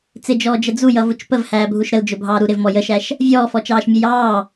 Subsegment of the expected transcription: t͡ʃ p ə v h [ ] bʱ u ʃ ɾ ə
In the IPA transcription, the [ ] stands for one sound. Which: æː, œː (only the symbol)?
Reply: æː